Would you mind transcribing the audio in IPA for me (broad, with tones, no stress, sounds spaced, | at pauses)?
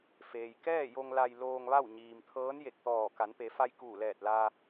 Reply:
f eː˩ j k ɛː˥˨ j o˧ ŋ l a˧ j l oː˧ ŋ ʋ a˥˨ w ɲ iː˩ m t̪ʰ ɤː˧˥ n j e˧˩ k̚ t̪ ɔː˧˩ k a˩˧ n p e˩˧ f a˧ j k uː˧˩ l ɛː˧˩ t̚ l aː˧